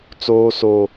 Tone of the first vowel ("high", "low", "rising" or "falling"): high